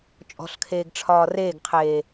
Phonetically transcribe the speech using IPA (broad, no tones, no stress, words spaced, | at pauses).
t͡ʃʼɔ̤ɬkʰeːɡ ʈ͡ʂʰɒːreːɡqʰeː